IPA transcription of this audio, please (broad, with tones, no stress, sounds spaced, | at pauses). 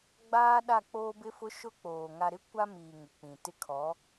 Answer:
ɡ͡b aː˦ ɗ a˦˨ k͡p oː˦ b ɪ˦ f ʊ˦ ʃ ʊ˦ k͡p oː˨ ŋ a˨ ɾ ɪ˦ kʷ a˦ m iː˨ ŋ ɪ˨ k͡p ĩ˨ t ɪ˦ kʰ ɔ˨˦